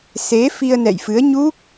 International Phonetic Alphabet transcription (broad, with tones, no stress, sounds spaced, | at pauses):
s e˨˦ f i˧ ə̯ n ɛ̰˧˨ j f ɨ˨˦ ə̯ ɲ u˦˥ k̚